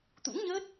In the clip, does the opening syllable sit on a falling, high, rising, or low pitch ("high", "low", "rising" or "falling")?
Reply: rising